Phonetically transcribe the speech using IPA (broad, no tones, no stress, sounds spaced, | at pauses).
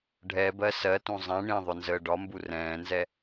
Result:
ɖʱ ɛ b ɜ s ɜ t ũ zˤ ɛ̃ ɳ ĩ ðˤ ʊ n z əː ɖ ɒ m b u r ɛ̃ː n z ɛ